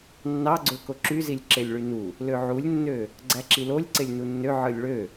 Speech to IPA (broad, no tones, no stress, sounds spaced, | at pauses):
nː ɑ ɡ͡ǀ ø k o ǁ y z i lʲ ǁ e lʲ ɭ y n u | l ø ʕ u lʲ nː ø | ɡ͡ǀ æ ǁ i l o lʲ ǀ e lʲ n u nː ø ʕ ɯ lʲ ɭ ø